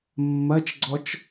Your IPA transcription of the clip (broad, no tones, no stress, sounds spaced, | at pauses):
mː ɐ t͡ʃ ɡ͡ǀ ɔ t͡ʃ